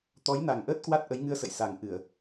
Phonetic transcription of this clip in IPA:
t̪ɔ˨˦jna˨˩ŋʔəː˦˥t̚ kwa˦˥t̚ʔə˨˦jŋɨ˧ə̯sə̰˧˨j sa˨˩ŋʔɨ˧˩˨ə̯

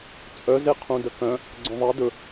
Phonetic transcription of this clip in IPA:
t͡sʼœzeqʰũ dəkœ̃ | ɡ͡ǀœ̃ðˤɛ dɵ

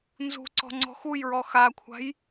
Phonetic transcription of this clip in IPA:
nzṳǀɔ̤ ŋ͡ǀɔ̤xujɹɔ xakʷʰa̤j

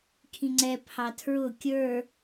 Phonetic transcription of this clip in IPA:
kʰĩŋ͡ǀɛ pʰɑtʰɹʊ kʲə˞

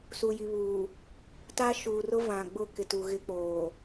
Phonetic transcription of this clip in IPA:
su˨ji˨ βuː˨ | ta˦ ʃuː˨rʊ˦vã˨ɡ͡bʊ˦ kɪ˨tu˨ɣɪ˦k͡poː˨

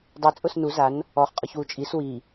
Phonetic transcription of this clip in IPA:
dˤe t͡sʼʊsnu zan | ɔχ qʼɔçwut͡ʃʼis wi

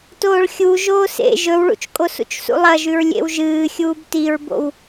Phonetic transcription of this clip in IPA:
toːɭxʲu ʒoːsḛ ʒɵwɭṵt͡ʃkʼo sṵt͡ʃsṵlˠɐʒʉɹ lʲḛwʒɨːxʲuːb tiɹbo̰w

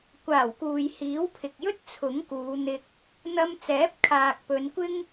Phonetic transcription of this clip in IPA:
kʷaː˨˩wkuː˨j hiː˨˥wpʰɪ˨k̚jɵ˥t̚ t͡sʰʊ˨˥ŋkuː˨˧n̪ɪ˧k̚ | n̪ɐ˧mt͡sɛː˨˥p̚ kʰaː˨k̚pɵ˨˧nkʷɪ˥ŋ

